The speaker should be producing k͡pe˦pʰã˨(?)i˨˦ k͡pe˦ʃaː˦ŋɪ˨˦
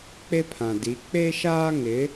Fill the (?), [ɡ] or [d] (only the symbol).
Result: d